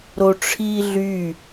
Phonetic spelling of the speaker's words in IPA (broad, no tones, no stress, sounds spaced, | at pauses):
ɾ o ʈ͡ʂʰ iː ɮ y